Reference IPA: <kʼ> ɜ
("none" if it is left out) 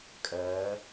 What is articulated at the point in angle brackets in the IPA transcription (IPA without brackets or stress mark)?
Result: kʼ